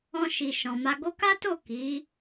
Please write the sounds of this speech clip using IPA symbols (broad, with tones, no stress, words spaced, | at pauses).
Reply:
ɔ̃˧ʃi˨ʃɔ̃˨ma˧ ɡo˧ka˦to˦˨ ki˨˦